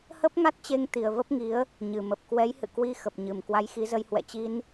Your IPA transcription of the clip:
h ə˦˥ p̚ ŋ a˦˥ t̚ t͡ɕ e˧ ŋ t̪ i˨˩ ə̯ v ə˦˥ p̚ ŋ i˨˦ ə̯ | ɲ ɨ˨˩ m ə˨˩ p̚ k w ɛ˨˦ j h ɨ̰˧˨ k w i˧ x ə˨˩ p̚ ɲ ɨ˨˩ m k w a˧ j x i˨˦ z ə˧ j h w ɛ̰˧˨ t͡ɕ i˧ n

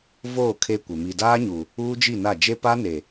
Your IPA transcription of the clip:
v oː˦˨ kʰ e˦ kʷ e˨ m i˨ d aː˦ ɲ u˨ | uː˦ d͡ʒ i˦˨ n a˦˨ d͡ʒ e˦ p a˦ n e˨

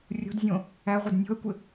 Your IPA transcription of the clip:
rʲ o̤ d zʲ õ | æ ʁʷ ɪ d nʲ o̤ ɐ̯ kʷ ɪ

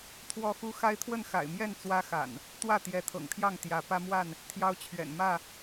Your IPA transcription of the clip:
t̪ʰ w ɔ˦ x u˦ x a˦ ɪ̯ t̪ʰ w ə˥˨ n x a̰˨˩ ɪ̯ m j ɛ˥˨ n t͡s w ä˦ x a̰˨˩ n | t̪ w ä˥˨ t̪ j ɛ˨˦ t̪ʰ ɤ̰˨˩ ŋ t̪ʰ j ɑ˥˨ ŋ t̪ j ä˨˦ p ä˦ m w a˥˨ n | t̪ʰ j ɑ˦ ʊ̯ t͡ɕʰ ɥ ɛ̰˨˩ n m ä˥˨

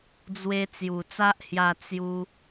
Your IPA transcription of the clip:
d͡z w e˧ t͡s j u˨˩ t͡s a˦ ʔ h j a˥˧ t͡s j u˦

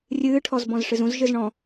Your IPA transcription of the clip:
rʲ ɨː ʈʰ ɔ z b ɔ̃ z ʂ ɨ z ũ z ʒ ɨ z ɳ ɔ̃

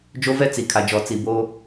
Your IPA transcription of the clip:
d͡ʒ o˦ v ɛ˦ t͡s i˨ kʰ a˨ d͡ʒ ɔ˨ t͡s i˨ b oː˦

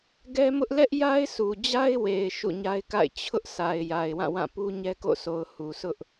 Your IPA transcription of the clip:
ɡ ɛ˦ m ʊ˦ ʔ l ɛ˦ ʔ j a˦ ɪ̯ s u˨ d͡ʑ a˦ ɪ̯ w e˨ ɪ̯ ʃ ṵ˦˨ ɲ a˦ ɪ̯ k a̰˦˨ ɪ̯ t͡ɕʰ ʊ˦ ʔ s a˨ ɪ̯ j a˨ ɪ̯ w ã˦˨ w ã˦˨ p u˦ ɲ ɛ˦ k o̰˦˨ sʰ o˨ ʊ̯ h u˨ s ʊ˦ ʔ

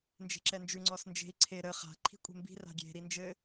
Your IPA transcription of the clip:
n d͡ʒ e̤ ǁ ɛ n d͡ʒ ʉ ŋ͡ǀ ɔ s n d͡ʒ e̤ i̯ ǀʰ e ɾ ə χ a̤ ǃʰ i̤ kʷʼ e̤ m b i̤ r a̤ ɡʲ e̤ ɾ i n d͡ʒ ɘ

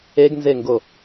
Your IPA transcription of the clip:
e ɡ n z e ŋ ɡ o

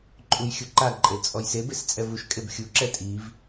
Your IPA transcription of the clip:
ǃʼ u j xʲ u ǃ a ǃʼ e l t͡sʼ ɔ j s e b e s t͡sʼ ɛ v u ʃ kʼ e b xʲ u ǁ ɛ tʼ i v

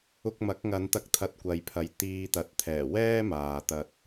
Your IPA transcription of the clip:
ʊ˧ k̚ m ɐ˨˥ k̚ ŋ ɐ˨˧ n t̪ ɐ˧ k̚ t̪ʰ ɐ˧ t̚ kʷ ɐ˨ j pʰ ɐ˨ j t̪ iː˧ t̪ ɐ˨˥ t̚ t̪ʰ ɛː˨˩ w ɛː˥ m aː˧ t̪ ɐ˥ t̚

